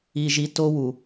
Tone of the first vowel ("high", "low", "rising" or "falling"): low